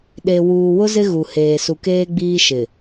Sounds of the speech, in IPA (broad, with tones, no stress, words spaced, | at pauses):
ɗe˨ wuː˨wʊ˦ zɪ˦ɣu˨heː˨ su˨keː˦ɡ͡biː˦ ʃɪ˨